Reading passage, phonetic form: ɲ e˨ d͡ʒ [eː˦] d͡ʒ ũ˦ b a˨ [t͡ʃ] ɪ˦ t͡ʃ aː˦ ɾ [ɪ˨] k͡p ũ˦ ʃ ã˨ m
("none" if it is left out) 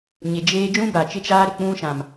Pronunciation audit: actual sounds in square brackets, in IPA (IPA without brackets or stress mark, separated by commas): eː˦, t͡ʃ, ɪ˨